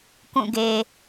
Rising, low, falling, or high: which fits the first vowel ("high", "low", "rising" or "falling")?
falling